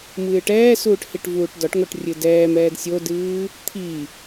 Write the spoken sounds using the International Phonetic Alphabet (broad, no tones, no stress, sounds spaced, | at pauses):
m ɨː ʈ ɛː s uː ʈ h i ʈ v uː ʈ d ɒ ʈ ŋ o ʈ rʲ ɨ d ɛː m ɛː d sʲ o d ɨː | t̪ʰ i